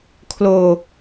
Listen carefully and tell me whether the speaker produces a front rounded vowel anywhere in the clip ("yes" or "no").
no